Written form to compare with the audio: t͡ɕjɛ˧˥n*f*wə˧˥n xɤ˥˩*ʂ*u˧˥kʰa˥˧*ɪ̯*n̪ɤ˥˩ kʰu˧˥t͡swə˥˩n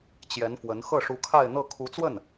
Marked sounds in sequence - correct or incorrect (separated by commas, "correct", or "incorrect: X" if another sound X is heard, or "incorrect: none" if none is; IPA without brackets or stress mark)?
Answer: correct, correct, correct